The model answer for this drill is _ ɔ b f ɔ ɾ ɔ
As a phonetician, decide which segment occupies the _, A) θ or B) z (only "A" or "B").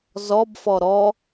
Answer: B